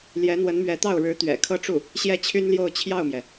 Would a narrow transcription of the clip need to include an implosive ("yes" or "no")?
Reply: no